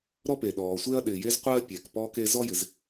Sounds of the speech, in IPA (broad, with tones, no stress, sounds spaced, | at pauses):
ɾ ɔ˥ p e˩ ɗ ɔː˩ sʷ e˥ ɐ̯ ɗ ɪː˩ j e˥ z qʷ ɜː˥ pʲ ɛ˩ k p ɔː˥ k e˥ z ɔ˥ j ɪ˩ z